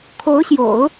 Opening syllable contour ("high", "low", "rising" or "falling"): rising